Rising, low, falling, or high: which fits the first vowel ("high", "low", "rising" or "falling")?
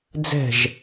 falling